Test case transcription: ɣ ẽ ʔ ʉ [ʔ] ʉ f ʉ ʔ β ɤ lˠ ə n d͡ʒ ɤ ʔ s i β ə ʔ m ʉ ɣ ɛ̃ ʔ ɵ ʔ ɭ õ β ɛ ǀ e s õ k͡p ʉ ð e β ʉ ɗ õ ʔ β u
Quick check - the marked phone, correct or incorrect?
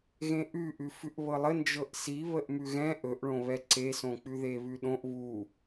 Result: correct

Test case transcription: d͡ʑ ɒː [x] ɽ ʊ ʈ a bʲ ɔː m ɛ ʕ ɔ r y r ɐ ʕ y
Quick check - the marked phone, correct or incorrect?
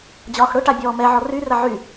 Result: correct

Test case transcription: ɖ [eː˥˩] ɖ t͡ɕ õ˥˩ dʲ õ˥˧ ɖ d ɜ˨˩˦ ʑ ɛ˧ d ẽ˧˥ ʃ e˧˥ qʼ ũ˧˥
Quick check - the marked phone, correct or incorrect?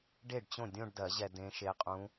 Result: incorrect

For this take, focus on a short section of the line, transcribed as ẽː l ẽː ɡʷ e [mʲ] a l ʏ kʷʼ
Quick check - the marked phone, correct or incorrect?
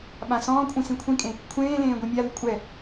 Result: correct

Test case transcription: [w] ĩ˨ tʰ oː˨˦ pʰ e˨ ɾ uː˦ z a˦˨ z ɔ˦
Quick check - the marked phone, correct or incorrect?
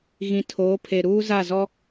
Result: incorrect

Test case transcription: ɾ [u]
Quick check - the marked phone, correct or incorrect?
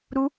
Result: correct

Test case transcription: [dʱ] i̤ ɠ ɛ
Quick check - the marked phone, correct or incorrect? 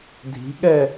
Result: correct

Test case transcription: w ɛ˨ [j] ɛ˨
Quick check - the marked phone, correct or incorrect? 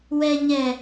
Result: incorrect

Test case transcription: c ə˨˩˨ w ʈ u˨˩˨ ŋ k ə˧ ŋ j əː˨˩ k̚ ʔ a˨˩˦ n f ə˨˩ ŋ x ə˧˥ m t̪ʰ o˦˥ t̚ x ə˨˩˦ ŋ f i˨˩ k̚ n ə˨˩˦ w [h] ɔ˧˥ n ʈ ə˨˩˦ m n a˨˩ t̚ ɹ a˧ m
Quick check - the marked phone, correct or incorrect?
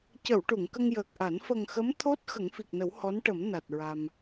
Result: correct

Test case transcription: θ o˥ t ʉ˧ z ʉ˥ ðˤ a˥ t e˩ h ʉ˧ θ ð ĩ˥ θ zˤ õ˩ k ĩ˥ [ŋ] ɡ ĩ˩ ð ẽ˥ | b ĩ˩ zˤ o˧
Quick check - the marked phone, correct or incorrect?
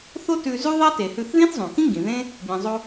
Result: correct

